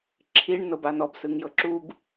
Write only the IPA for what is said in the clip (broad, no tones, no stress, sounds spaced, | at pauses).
ǁʰ i ɳ n ɤ b a n ɔ b s ɯ ŋ j ɤ ǁ u b